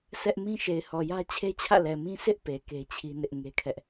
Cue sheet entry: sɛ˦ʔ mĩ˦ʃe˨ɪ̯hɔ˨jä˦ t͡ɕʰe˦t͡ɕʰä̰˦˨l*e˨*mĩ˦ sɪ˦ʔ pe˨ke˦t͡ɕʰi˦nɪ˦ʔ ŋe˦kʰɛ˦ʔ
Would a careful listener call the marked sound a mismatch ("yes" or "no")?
yes